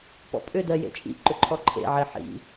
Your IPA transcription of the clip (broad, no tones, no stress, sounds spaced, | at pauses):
p ɔ̰ pʼ ʏ d ɜ j ḛ t͡ʃʼ ḭ ǃ ʏ ǃʰ ɔ ǃʰ ḛ ʕ ɪ ħ ḭ